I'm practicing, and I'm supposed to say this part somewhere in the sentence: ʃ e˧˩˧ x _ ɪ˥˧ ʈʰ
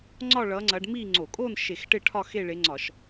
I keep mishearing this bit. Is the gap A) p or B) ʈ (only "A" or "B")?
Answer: B